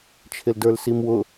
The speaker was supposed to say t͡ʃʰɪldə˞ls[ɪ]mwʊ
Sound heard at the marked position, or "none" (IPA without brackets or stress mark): i